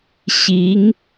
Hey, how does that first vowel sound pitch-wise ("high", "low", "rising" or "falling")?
rising